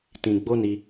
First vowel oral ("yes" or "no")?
no